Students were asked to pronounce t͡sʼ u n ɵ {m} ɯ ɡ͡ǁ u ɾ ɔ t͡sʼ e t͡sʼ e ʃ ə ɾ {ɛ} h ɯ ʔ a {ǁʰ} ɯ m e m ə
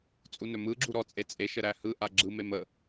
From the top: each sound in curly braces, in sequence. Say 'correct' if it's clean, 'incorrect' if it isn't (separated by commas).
correct, incorrect, incorrect